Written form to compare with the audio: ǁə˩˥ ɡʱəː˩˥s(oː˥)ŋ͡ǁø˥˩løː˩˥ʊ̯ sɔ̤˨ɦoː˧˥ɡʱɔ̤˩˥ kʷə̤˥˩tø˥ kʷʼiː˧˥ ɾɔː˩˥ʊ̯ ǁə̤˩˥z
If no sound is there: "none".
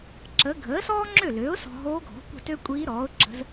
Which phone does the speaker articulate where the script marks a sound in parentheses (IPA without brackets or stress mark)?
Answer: ɔː˥